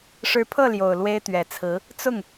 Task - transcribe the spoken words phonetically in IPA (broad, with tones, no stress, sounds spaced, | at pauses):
ʂ ɻ̩˧˥ pʰ ɤ˥˩ l j o˨˩ ʊ̯ l w e˥ ɪ̯ t̪ ɥ ɛ˨˩ t͡sʰ ɹ̩˧˥ | t͡s ʊ˥˩ ŋ